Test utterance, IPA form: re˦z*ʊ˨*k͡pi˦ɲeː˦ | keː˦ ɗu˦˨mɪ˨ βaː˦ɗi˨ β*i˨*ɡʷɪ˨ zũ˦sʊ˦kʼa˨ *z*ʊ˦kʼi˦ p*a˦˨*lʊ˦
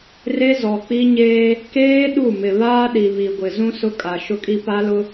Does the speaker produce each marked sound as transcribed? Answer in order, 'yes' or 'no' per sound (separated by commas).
no, yes, no, no